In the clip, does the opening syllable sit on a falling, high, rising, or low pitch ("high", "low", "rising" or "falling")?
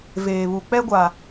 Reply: low